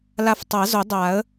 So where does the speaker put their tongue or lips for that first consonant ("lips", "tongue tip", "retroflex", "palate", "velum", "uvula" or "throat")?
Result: tongue tip